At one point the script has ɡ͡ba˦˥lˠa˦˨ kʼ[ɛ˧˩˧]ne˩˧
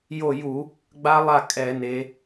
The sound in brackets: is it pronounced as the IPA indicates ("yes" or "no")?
yes